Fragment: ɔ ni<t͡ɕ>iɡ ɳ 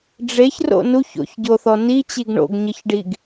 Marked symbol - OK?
yes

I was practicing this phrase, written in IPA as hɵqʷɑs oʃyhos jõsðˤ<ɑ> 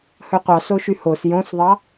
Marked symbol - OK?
yes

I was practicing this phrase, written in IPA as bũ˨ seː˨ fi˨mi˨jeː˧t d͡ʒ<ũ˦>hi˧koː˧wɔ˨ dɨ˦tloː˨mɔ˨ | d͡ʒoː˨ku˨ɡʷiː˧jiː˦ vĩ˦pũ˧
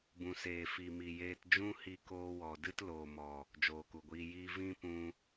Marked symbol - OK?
yes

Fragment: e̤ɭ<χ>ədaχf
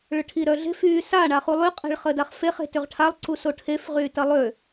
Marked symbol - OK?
yes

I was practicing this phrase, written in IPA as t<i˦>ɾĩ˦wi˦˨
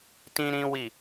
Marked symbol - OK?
no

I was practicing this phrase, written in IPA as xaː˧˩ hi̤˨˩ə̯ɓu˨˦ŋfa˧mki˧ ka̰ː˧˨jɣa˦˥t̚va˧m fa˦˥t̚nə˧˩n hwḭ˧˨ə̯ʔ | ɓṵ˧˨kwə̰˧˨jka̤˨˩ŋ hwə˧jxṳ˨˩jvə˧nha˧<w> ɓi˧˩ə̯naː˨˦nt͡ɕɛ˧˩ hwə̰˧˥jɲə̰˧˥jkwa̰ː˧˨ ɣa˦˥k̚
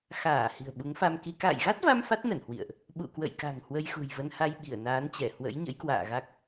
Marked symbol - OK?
no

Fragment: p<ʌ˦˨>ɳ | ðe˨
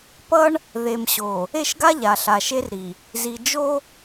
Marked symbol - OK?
no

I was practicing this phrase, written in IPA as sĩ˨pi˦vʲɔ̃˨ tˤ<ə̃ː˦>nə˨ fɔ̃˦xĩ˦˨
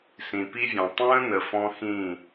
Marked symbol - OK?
yes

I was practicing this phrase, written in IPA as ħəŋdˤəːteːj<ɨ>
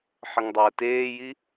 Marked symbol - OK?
no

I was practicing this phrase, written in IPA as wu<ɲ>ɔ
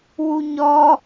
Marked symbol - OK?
yes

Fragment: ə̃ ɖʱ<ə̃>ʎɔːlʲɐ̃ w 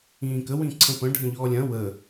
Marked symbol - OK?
yes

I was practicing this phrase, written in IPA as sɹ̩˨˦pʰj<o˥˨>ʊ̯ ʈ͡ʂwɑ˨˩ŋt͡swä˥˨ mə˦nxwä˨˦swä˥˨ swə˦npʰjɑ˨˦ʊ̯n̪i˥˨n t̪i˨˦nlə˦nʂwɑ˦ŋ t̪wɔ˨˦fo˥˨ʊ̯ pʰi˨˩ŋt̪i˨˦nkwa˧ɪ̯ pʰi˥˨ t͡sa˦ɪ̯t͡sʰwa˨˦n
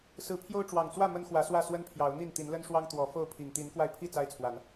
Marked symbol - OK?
no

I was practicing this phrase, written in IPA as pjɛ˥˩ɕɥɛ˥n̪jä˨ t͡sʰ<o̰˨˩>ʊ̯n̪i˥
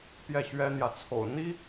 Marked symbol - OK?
yes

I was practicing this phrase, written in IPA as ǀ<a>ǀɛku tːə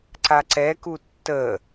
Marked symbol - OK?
yes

